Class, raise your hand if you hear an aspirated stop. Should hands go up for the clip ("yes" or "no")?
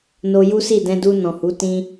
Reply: no